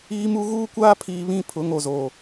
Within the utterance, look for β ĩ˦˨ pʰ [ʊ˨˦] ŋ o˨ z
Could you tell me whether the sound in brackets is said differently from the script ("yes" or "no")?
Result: no